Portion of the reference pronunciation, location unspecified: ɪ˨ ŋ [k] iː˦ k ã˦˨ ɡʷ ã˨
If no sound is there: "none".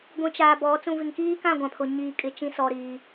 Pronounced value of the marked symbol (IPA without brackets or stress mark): k